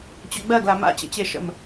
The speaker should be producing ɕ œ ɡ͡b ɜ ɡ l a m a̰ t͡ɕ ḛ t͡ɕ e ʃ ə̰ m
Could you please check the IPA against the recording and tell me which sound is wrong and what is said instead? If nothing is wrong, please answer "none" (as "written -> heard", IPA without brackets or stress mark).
ɕ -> t͡ɕ